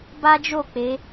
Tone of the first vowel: high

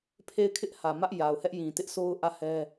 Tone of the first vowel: falling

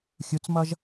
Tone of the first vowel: rising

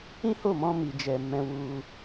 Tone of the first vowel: high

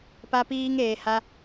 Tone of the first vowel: high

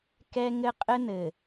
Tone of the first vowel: high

